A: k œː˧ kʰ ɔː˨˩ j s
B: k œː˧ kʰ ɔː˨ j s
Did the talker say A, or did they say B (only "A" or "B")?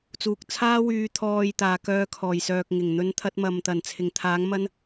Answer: A